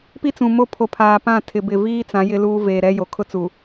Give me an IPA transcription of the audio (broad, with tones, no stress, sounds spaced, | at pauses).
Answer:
p i˦ t͡s ũ˨ m o˦˨ pʰ o˨˦ pʰ aː˨ p ã˦˨ tʰ ɪ˨ b ɪ˨ v iː˦ t͡s ã˨˦ j ɪ˦ l uː˦ v eː˨ ɾ ɛ˦ j o˨ kʰ ʊ˦ t͡s u˨